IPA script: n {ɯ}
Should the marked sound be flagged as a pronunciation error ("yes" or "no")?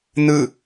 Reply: no